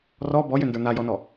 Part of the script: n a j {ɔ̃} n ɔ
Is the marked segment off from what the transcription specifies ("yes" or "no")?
yes